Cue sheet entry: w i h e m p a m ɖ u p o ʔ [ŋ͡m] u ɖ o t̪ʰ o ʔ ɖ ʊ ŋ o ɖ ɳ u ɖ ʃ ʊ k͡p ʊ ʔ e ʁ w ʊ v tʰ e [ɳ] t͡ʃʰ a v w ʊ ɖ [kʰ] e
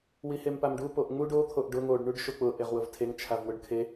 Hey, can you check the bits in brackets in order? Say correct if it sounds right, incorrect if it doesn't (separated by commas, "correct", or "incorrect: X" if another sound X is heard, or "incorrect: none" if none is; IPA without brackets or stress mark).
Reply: correct, incorrect: ŋ, correct